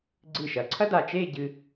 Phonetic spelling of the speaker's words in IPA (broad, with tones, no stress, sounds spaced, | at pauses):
ɡ͡ǀ ɨ˧˩ ʃ ɐ˩˧ ǀʰ ɐ˥ d a˧˩ t͡ʃ e˥˧ ɟ ɨ˧